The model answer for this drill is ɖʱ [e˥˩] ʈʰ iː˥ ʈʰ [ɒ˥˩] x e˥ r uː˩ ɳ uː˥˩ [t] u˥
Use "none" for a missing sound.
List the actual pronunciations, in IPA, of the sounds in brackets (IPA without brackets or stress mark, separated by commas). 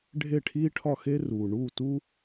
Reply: e˥˩, ɒ˥˩, t